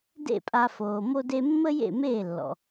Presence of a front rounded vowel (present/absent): absent